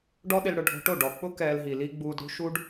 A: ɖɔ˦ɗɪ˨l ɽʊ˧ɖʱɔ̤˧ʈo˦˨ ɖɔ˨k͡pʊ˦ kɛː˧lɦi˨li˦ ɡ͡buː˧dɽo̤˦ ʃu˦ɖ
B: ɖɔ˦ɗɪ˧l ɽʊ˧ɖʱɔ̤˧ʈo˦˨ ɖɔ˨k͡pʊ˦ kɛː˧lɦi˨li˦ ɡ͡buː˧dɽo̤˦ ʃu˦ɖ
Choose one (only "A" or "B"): B